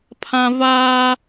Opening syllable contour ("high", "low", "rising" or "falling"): high